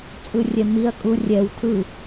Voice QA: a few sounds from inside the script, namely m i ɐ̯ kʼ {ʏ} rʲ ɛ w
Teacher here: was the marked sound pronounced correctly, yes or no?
no